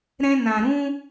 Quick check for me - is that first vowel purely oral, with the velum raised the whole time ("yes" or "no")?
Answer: no